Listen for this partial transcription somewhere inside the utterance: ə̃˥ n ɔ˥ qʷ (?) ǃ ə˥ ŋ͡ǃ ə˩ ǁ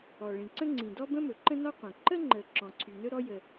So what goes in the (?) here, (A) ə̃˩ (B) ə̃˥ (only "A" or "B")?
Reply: A